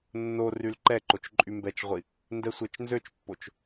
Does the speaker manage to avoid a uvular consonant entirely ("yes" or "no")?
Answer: no